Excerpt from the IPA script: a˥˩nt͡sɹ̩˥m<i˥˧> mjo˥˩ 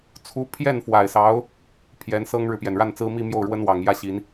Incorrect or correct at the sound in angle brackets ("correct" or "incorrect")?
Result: correct